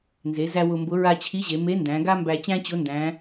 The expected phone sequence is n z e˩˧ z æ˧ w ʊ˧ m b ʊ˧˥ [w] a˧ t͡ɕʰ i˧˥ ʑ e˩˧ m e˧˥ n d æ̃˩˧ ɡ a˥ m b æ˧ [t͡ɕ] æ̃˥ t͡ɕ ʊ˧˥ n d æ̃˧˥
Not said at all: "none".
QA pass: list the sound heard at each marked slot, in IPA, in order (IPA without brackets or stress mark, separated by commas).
ɹ, t͡ɕ